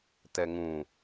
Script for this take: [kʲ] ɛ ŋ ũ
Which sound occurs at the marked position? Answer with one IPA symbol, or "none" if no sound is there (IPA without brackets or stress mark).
t